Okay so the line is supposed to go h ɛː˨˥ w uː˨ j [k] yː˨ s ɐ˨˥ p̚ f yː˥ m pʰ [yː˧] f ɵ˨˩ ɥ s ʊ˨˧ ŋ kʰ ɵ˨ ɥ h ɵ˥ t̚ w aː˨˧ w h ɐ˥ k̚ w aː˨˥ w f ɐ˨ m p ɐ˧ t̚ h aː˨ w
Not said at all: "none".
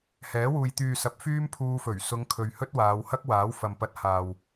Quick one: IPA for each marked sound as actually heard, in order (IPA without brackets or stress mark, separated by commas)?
t̪, uː˧